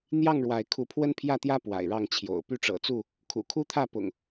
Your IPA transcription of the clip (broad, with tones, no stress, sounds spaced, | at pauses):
n̪ j ɑ˥˨ ŋ ɻ w a˨˦ ɪ̯ kʰ u˨˦ pʰ w ə˦ n pʰ j ä˥˨ t̪ j ä˦ p w a̰˨˩ ɪ̯ ɻ ɑ˥˨ ŋ t͡ɕʰ j o̰˨˩ ʊ̯ p y˥˨ ʈ͡ʂ ɤ̰˨˩ t͡s u˥˨ | kʰ ṵ˨˩ kʰ u˦ t̪ʰ ä˥˨ p ʊ̰˨˩ ŋ